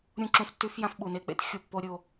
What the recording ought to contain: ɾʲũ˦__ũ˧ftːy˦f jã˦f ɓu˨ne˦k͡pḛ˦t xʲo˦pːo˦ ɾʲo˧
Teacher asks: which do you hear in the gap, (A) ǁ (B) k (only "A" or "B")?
A